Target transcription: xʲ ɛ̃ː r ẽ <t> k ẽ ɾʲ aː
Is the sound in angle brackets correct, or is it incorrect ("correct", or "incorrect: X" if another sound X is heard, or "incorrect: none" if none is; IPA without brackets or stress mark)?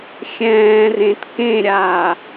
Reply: correct